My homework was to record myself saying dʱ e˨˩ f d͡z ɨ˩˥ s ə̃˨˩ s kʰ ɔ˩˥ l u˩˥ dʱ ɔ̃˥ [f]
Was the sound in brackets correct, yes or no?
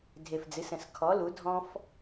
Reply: yes